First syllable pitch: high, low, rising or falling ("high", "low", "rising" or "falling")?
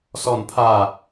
falling